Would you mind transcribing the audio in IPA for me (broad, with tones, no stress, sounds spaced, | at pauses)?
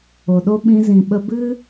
o˨ ɗ o˦ ɓ ĩ˧ z ĩ˨ ɓ ə˧ b ɨ˦